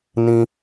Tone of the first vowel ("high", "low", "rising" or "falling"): high